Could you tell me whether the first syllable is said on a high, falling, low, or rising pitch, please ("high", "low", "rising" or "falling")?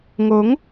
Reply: rising